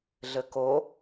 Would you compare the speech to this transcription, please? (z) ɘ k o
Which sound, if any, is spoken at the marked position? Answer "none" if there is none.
ɮ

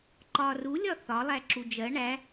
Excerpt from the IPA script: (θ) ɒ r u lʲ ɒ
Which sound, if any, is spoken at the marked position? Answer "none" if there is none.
ǃ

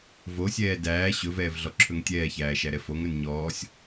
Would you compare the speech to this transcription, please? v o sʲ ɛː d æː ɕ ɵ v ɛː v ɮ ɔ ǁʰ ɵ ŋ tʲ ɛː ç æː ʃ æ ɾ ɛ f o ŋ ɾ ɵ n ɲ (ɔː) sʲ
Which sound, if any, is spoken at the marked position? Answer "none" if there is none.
ɔː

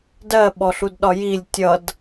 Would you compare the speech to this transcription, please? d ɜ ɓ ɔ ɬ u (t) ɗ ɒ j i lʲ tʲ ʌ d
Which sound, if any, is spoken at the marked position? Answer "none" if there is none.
d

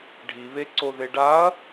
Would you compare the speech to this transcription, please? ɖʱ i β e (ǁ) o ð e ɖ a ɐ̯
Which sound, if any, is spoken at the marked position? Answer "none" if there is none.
ǀ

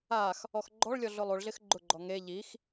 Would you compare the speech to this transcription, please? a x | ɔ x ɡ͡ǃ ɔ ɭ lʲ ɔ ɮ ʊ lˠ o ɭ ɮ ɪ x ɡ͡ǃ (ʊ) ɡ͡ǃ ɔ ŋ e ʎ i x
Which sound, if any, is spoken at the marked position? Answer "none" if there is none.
ʊ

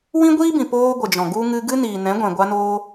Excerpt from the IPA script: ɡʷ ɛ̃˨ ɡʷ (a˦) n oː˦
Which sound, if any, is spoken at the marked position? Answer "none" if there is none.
a˦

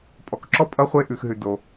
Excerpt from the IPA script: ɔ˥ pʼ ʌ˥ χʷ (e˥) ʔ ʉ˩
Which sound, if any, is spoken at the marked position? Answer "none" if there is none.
e˥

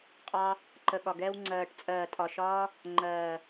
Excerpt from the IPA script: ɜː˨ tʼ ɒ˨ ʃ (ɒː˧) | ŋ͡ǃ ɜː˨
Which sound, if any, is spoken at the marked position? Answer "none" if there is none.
ɒː˧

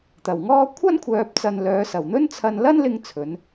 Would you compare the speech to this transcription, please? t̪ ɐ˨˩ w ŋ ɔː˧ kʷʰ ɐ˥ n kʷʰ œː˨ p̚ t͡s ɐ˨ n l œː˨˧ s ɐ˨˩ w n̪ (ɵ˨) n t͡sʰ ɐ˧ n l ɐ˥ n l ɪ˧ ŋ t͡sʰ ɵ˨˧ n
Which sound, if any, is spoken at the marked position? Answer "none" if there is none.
ɵ˥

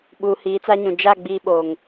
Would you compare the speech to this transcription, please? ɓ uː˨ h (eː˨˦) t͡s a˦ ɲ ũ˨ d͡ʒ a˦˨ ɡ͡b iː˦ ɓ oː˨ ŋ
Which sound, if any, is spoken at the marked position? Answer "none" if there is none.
iː˨˦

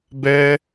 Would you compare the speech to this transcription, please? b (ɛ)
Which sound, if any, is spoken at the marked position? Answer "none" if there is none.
ɛ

